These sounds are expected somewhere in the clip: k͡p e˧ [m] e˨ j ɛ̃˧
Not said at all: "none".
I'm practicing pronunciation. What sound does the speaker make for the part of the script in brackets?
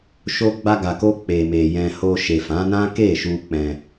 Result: m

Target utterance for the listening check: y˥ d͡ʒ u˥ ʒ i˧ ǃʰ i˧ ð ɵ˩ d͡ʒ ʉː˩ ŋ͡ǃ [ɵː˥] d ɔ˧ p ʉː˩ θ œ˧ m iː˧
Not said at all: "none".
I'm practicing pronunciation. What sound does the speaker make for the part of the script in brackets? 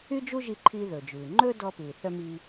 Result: ɵː˥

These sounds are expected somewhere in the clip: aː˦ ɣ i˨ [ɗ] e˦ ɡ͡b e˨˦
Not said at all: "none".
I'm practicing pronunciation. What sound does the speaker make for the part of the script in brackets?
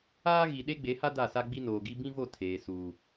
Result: ɗ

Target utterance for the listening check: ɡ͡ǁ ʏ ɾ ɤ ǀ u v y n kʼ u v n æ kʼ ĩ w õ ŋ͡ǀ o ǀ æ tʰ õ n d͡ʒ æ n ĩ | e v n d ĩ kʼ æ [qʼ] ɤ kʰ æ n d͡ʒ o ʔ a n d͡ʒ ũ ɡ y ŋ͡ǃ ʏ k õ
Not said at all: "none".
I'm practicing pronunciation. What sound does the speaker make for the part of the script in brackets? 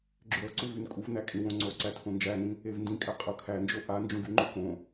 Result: qʼ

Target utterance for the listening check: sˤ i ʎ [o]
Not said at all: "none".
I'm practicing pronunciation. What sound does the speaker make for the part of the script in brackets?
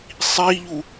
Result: u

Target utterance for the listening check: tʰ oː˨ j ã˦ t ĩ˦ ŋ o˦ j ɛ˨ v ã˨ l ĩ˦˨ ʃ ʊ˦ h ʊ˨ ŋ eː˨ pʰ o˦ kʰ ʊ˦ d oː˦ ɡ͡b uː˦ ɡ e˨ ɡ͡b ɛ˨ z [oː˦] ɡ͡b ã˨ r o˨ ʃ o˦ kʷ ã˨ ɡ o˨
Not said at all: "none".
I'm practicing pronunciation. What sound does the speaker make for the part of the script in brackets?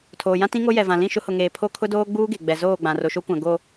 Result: oː˦˨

